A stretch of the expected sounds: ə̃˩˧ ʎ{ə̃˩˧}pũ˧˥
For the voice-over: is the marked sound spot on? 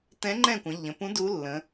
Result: yes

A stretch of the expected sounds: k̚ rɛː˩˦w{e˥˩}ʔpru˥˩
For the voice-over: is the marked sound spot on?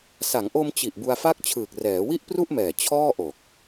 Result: no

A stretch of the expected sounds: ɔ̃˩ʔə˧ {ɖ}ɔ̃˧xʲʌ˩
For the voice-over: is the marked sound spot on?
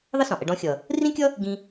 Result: yes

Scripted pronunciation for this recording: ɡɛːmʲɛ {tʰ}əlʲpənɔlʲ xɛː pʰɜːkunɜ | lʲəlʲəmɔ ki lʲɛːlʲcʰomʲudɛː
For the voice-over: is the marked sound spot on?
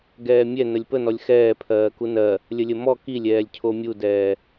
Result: no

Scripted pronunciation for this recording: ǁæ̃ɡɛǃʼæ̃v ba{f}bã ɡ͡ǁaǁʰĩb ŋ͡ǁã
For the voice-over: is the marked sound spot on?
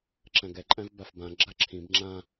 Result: yes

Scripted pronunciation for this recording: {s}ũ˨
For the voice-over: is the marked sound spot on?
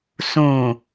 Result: yes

